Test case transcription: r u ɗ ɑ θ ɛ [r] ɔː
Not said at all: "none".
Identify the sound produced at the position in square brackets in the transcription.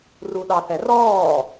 r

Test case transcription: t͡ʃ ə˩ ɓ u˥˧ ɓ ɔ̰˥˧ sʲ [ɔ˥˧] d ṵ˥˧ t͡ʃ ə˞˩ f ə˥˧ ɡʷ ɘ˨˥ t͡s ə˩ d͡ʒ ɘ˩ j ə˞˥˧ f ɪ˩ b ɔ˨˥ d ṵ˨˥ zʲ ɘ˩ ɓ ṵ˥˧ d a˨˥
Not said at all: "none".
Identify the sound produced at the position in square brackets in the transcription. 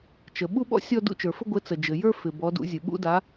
ɔ˥˧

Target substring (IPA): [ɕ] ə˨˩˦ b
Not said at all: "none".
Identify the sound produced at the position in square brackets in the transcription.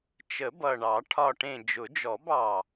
t͡ʃ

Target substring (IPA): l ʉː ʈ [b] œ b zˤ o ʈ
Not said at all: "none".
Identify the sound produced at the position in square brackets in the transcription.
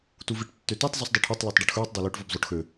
v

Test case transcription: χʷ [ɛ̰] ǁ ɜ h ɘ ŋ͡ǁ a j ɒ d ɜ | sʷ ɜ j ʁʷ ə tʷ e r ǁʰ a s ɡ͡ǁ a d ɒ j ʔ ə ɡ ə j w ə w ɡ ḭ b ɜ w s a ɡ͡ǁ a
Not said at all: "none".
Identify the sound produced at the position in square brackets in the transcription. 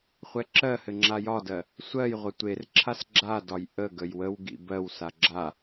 ɛ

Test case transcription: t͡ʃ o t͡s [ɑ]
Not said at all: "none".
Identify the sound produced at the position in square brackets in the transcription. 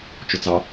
ɑ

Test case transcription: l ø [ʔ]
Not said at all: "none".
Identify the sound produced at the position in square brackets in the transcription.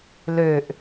ʔ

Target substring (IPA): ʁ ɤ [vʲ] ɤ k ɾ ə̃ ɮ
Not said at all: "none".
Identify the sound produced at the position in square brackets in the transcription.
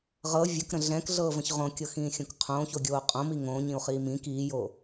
vʲ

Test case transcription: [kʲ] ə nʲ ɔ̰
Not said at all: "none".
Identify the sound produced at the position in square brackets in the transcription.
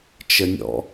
t͡ʃ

